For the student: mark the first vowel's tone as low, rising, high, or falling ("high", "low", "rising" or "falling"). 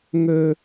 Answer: high